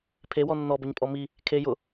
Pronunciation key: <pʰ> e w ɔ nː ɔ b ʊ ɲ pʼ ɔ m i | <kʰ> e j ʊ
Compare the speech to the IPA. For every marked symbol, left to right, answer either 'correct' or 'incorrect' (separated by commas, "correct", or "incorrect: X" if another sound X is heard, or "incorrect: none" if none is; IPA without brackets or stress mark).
correct, correct